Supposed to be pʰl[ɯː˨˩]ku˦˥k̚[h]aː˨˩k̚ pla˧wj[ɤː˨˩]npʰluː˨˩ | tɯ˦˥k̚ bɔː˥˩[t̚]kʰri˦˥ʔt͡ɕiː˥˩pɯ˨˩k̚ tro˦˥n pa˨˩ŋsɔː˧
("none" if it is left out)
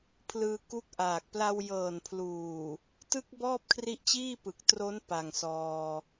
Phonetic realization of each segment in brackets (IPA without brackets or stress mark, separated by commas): ɯː˧, ʔ, ɤː˨˩, p̚